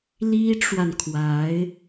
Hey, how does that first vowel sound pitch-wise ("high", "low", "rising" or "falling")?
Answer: high